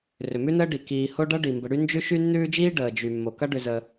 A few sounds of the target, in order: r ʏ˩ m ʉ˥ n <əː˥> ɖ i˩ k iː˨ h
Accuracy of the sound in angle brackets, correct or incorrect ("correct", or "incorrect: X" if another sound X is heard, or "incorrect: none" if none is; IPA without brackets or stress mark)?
correct